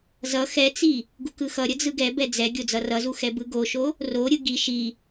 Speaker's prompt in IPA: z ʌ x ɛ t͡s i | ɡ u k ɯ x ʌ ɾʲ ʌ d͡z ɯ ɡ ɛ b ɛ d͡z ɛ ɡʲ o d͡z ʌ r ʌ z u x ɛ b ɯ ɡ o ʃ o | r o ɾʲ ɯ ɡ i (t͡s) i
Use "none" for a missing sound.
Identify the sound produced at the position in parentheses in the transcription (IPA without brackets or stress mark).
ʃ